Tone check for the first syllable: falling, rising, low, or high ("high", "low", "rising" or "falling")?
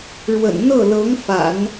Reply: low